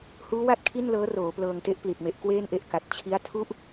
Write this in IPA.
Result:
h uː˦˥ w a˦˥ t̚ kʰ i˥˩ n l ɤː˦˥ r oː˩˦ p l ɤː˧ ŋ t e˦˥ ʔ p l i˨˩ t̚ m e˨˩ ʔ k w eː˥˩ n ʔ e˦˥ ʔ k a˨˩ t̚ t͡ɕʰ i˦˥ a̯ tʰ u˥˩ ʔ

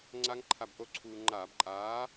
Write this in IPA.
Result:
ŋ͡ǀ a˦˥ ŋ ǃʰ a˧ b ʔ o˥˨ ǀʰ uː˧ ŋ͡ǃ aː˧˩˧ b ǃʼ aː˨˥

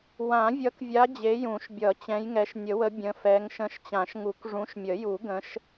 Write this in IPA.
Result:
w ã˨˩˦ vʲ ʌ˨˦ k vʲ a˨˦ d͡ʑ e˨˦ j ũ˨˩˦ ʃ bʲ ʌ˨˩˦ t͡ɕ ɛ̃˨˦ j ŋ ɛ˨˦ ʃ nʲ ə˨˩˦ w ə˨˦ bʲ ə̃˨˦ f ɛ˨˦ ŋ ʃ ə̃˨˦ ʃ t͡ɕ ã˨˩˦ ʃ ŋ u˨˩˦ k ʐ ũ˨˦ ʃ mʲ ə˨˩˦ j u˨˩˦ ɡ ə̃˨˦ ʃ

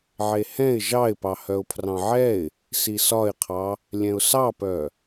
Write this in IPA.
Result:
ʕ e h ɛ̃ ɪ̯ ʒ ɑ ɪ̯ p ɑ h œ ʊ̯ pʰ r ɑ̃ ʕ ɛ ɪ̯ | s i s ɒ ɪ̯ qʰ ɑ | lʲ ɛ̃ ʊ̯ s ɑ p œ

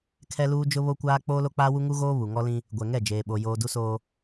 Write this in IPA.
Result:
kʰ ɛ˦ l uː˦ d͡ʒ ʊ˦ β o˦ kʷ aː˦ k͡p oː˦ l o˦ k͡p aː˦ w u˦ ŋ u˦ ɣ oː˦ β u˨ ŋ ɔ˦ l ĩ˦ | ɡʷ ɛ˨ ŋ ɛ˦˨ d͡ʒ eː˨ ɓ o˨ j oː˨ d u˦ s oː˦

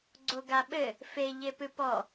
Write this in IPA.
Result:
ɡ͡ǀ o ɡ a ɓ ɘ | f e ʎ e p ɨ p ɔ

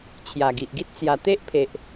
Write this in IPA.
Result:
t͡ɕʰ j a˨˩ ɡ i˨ ʔ ɡ i˦ t̚ t͡s j a˨˩ t̪ e˦ ʔ pʰ e˨ ʔ

